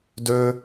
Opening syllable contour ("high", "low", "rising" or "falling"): high